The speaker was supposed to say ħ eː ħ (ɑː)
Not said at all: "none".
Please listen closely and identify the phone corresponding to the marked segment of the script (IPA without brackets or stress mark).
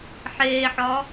ɒː